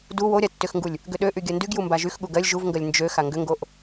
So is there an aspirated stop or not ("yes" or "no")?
no